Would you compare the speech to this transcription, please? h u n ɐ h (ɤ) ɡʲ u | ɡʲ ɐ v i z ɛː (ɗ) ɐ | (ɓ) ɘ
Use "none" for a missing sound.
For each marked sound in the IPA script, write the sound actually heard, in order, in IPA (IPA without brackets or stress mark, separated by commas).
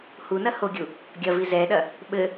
o, ɗ, ɓ